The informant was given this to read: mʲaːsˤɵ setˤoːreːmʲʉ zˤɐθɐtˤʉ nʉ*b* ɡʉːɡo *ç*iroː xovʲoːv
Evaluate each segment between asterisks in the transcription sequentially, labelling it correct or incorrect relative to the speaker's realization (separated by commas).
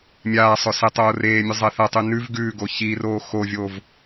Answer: incorrect, correct